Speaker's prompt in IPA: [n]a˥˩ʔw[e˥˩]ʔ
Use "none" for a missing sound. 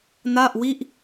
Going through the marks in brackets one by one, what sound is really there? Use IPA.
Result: n, i˥˩

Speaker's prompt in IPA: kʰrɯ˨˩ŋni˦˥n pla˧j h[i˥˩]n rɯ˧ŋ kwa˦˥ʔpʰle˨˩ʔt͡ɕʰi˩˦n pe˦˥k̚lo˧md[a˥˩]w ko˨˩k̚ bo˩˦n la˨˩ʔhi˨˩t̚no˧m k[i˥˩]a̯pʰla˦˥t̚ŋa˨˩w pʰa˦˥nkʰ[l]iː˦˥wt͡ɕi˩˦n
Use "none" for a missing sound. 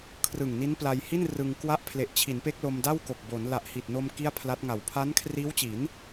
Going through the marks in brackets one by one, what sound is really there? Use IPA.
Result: i˥˩, a˥˩, i˥˩, r

